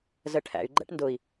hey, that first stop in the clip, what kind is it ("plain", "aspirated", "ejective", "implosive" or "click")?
aspirated